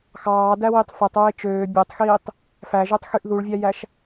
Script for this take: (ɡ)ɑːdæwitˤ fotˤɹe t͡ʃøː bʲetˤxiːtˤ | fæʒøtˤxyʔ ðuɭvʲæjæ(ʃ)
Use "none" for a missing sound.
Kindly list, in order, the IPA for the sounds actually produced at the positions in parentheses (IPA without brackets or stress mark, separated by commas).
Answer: x, ʃ